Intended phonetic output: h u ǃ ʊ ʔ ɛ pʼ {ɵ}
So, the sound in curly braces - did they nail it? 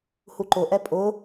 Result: no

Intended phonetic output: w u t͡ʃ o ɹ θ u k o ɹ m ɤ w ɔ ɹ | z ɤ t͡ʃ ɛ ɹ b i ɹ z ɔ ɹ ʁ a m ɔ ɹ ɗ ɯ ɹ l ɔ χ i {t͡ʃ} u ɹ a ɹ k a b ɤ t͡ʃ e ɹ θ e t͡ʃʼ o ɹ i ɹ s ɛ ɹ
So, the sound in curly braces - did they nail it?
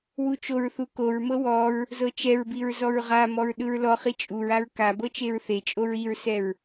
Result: no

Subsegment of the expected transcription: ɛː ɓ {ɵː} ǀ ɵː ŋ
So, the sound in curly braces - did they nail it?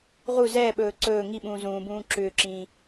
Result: yes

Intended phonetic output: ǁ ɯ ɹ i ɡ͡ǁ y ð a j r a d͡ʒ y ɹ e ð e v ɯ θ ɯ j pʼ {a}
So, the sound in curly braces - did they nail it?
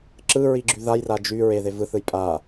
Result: yes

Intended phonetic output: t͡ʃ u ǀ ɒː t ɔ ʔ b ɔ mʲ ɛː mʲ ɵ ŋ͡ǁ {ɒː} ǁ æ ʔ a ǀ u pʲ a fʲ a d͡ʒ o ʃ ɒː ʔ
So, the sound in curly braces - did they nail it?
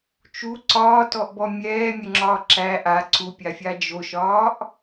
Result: yes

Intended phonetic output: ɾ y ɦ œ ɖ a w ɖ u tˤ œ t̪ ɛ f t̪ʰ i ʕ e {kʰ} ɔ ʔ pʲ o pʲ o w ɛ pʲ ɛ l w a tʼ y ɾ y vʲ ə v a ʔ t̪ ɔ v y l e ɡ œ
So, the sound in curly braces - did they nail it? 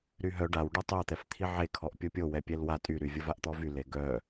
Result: yes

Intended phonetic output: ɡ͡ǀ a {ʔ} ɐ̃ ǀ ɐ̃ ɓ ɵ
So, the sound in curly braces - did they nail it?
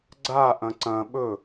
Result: yes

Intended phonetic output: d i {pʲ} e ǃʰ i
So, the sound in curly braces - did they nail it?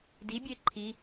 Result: no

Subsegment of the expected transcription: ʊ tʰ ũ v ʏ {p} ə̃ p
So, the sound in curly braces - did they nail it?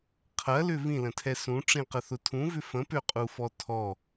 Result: no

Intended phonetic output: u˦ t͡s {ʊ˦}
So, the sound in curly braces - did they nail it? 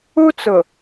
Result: no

